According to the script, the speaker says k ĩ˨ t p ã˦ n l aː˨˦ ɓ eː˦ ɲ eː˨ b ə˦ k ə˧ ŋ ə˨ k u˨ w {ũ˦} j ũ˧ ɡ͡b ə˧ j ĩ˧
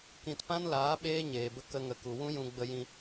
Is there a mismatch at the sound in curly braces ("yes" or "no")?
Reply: no